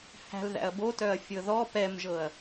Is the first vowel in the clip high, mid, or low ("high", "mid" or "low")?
low